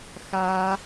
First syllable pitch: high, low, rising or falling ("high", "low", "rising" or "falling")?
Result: low